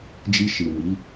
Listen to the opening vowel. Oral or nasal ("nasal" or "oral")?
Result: oral